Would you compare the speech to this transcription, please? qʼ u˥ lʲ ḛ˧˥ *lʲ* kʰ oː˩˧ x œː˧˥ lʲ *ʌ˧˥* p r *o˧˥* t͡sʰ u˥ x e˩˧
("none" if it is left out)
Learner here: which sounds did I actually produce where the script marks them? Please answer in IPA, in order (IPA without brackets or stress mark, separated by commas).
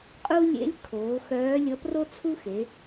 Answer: lʲ, ʌ˧˥, o˥